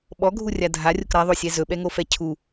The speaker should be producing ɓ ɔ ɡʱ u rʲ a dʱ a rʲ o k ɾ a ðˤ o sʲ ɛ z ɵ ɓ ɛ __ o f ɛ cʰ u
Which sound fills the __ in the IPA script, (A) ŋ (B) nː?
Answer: A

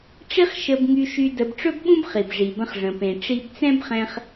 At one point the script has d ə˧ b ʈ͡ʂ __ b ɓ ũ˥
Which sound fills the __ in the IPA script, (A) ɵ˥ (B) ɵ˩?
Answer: A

